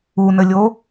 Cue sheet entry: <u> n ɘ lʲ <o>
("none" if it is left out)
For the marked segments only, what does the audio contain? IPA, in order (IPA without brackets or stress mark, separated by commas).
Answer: u, o